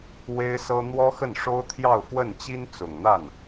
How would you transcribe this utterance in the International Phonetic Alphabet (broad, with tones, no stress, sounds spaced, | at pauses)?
w e˥ ɪ̯ s ɤ˥ n̪ w ɔ˥ x ə˥˩ n ʂ o˥ ʊ̯ t̪ʰ j ɑ˥˧ ʊ̯ f w ə˥˩ n t͡ɕ i˥ n t͡s ʊ˨˩ ŋ n̪ a˥˩ n